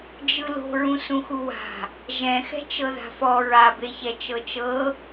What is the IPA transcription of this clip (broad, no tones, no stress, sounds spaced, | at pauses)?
d͡ʒ ɯ l o̤ ɹ ũ s ũ x u w a̤ | ʒ ɛ̃ x ɛ̤ t͡ʃ ɤ ð a̤ f ɔ ɹ a b e ç ɛ t͡ʃ ɤ t͡ʃ ɤ